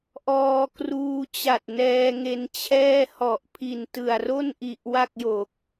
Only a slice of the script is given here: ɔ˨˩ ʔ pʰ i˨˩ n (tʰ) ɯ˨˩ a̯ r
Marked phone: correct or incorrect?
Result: incorrect